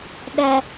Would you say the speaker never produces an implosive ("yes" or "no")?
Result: no